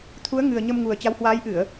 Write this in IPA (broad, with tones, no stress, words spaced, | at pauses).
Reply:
t̪ʰu˨˦ə̯ŋɨ˨˩ə̯ ɲə˧mŋu˨˩ə̯ t͡ɕa˨˦whwaː˨˦jʔɨ˧˩˨ə̯